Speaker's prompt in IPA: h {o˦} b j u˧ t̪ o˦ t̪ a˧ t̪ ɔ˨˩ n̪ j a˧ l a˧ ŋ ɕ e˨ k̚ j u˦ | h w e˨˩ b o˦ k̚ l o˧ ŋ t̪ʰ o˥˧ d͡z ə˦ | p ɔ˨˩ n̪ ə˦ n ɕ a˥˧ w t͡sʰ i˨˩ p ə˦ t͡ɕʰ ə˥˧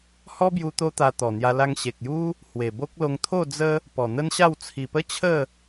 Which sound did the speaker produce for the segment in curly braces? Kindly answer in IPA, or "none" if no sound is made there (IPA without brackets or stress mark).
ɔ˦